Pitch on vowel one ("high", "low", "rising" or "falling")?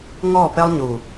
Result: falling